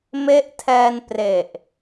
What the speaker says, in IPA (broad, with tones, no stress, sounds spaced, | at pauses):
m e˦˥ ʔ tʰ ɛː˧ n p r e˨˩ ʔ